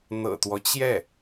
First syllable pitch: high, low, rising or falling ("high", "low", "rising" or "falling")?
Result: low